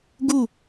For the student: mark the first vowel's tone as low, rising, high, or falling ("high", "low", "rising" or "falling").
falling